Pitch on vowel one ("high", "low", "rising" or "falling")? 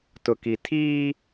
low